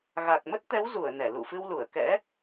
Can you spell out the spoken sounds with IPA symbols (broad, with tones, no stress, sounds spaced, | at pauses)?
ɣ a˨˩ k̚ m ə˦˥ t̚ t̪ ɛ˨˦ w z u˧˩ ə̯ n ɛ˧˩ l ṵ˧˨ f ɨ˧ w l u˧˩ ə̯ k ɛ̰˧˥